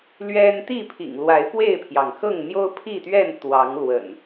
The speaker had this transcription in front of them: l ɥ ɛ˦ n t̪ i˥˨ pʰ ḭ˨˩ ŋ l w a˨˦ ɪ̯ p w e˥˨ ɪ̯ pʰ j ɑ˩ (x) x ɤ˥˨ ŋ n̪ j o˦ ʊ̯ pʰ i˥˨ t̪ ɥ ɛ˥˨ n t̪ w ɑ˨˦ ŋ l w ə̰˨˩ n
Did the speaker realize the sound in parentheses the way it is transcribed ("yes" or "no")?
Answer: no